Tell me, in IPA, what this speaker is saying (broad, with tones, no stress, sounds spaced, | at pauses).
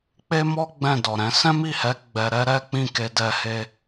k͡p e˦ m ɔ˦ ɡ͡b ɛ̃˦˨ d ɔ˨ ɾ ɛ̃˨˦ s ɛ̃˦ m i˦˨ h ɛ˨˦ ɡ͡b ɛ˧ ɾ ɛ˦ ɾ ɛ˦ k͡p ĩ˦˨ k e˧ d ɛ˧ h e˦